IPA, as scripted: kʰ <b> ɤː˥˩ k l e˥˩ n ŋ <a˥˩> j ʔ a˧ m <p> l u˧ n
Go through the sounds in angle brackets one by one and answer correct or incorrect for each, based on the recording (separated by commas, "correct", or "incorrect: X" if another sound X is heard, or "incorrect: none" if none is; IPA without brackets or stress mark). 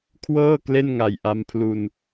incorrect: w, incorrect: a˨˩, incorrect: pʰ